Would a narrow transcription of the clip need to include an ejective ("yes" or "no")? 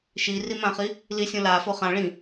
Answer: no